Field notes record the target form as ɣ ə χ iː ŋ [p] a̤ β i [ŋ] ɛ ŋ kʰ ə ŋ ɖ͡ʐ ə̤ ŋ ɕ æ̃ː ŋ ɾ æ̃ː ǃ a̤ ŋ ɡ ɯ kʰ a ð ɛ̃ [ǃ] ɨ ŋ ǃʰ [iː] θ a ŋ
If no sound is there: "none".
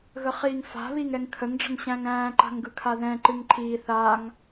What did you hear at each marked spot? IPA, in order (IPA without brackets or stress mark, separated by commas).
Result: f, ŋ, ǃ, iː